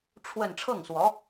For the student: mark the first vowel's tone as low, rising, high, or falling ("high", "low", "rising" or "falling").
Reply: falling